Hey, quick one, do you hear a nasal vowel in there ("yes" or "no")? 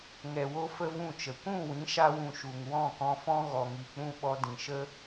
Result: yes